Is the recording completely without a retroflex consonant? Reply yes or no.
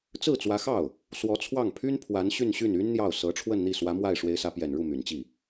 no